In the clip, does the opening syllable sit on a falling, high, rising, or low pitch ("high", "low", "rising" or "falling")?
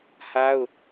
high